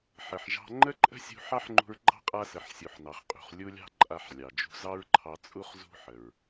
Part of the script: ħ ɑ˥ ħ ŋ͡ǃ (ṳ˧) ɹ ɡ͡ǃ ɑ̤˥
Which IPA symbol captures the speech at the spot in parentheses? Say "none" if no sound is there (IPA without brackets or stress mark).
ṳ˧